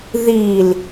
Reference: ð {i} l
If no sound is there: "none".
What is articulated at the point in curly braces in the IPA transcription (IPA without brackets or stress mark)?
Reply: i